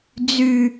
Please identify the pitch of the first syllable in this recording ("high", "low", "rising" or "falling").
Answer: low